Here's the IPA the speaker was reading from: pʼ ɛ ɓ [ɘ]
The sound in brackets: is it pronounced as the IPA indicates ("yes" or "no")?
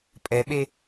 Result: no